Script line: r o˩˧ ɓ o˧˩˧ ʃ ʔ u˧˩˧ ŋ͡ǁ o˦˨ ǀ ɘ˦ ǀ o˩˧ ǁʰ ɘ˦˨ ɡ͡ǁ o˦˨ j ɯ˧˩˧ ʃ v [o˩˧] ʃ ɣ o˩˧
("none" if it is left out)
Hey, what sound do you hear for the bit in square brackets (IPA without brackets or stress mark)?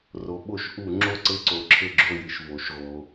o˩˧